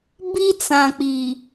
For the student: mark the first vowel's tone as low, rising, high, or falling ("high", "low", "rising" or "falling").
high